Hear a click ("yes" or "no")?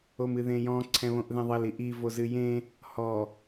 yes